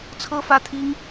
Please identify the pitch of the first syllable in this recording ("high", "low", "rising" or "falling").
high